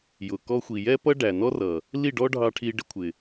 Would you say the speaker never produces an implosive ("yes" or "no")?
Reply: yes